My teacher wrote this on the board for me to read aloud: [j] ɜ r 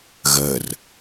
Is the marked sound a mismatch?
yes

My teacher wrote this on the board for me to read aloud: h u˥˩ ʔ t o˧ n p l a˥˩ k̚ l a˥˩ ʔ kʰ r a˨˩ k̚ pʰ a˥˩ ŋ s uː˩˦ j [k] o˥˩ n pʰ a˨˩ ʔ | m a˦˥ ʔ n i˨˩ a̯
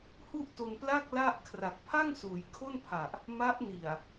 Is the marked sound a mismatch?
yes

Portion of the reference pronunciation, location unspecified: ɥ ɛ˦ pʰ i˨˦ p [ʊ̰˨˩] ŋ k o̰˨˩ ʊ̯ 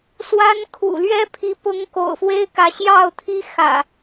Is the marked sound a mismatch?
yes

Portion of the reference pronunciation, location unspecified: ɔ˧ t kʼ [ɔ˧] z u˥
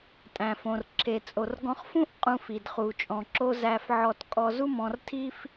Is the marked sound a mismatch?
no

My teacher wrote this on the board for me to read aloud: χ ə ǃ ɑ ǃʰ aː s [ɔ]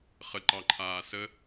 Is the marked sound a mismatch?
yes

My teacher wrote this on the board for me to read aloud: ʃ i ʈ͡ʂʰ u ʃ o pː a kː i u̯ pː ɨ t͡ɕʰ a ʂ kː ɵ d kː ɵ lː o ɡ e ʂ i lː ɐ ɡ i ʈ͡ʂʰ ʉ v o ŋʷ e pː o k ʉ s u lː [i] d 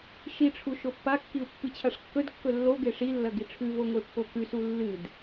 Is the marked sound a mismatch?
yes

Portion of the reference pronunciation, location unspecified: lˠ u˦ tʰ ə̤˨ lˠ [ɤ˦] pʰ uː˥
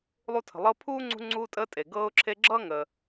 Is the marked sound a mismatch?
no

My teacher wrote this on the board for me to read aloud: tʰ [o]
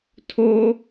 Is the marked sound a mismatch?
no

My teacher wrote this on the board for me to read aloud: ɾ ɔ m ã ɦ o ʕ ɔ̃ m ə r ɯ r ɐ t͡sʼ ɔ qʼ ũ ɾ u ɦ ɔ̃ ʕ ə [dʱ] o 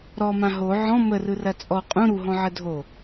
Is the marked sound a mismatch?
no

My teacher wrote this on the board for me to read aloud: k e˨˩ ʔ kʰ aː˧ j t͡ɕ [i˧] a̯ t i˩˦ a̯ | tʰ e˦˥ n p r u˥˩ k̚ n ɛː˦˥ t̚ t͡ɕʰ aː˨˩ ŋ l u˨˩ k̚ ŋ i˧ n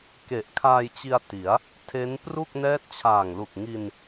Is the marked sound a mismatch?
no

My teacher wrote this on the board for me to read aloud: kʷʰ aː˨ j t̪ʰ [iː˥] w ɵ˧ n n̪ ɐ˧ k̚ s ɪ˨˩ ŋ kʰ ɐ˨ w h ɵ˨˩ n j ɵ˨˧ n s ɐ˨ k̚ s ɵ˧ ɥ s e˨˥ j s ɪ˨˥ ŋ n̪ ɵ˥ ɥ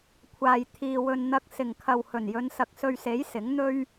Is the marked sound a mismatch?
yes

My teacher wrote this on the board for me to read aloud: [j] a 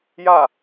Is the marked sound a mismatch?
no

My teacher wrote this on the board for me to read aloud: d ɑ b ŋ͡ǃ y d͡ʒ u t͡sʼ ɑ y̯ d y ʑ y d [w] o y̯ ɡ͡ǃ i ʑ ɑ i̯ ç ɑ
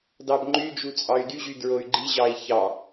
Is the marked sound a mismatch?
yes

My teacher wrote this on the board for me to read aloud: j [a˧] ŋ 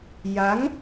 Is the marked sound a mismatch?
yes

